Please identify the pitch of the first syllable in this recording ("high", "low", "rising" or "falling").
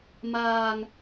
high